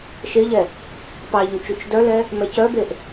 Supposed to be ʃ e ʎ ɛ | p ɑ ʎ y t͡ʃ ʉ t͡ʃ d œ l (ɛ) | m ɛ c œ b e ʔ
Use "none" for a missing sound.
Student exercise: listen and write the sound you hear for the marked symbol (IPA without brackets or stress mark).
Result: ɛ